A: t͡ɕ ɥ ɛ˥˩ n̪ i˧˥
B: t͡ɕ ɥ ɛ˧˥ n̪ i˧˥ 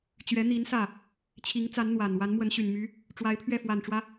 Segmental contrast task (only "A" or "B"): B